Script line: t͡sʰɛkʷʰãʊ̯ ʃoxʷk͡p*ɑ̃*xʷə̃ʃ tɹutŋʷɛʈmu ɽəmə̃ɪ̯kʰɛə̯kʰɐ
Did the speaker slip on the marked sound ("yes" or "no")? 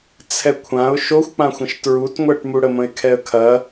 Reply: yes